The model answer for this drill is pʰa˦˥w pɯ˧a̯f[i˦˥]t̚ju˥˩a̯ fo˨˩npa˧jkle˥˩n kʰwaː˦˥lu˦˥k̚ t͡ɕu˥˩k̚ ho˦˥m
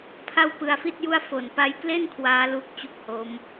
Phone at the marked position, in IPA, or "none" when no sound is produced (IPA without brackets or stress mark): i˥˩